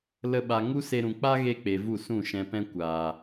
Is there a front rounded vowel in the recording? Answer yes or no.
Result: no